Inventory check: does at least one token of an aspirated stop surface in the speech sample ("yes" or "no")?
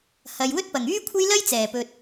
yes